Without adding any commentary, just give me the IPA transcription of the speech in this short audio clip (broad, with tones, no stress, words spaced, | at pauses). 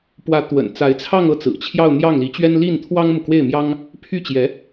pwä˧˥t̪wə̰˨˩n t͡sa˧˥ɪ̯t͡sʰɑ˥˧ŋ ɤ˥˩t͡sɹ̩˨˩t͡ɕʰjɑ˥˧ʊ̯ n̪jɑ˥˩ŋli˧˥t͡ɕɥɛ˥n li˥˩n t̪ʰwɑ˥ŋmu˨kwe˥˩ɪ̯mjɑ˥ŋ | pʰy˥˩t͡ɕjɛ˧˥